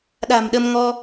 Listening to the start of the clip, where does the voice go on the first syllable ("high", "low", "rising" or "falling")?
low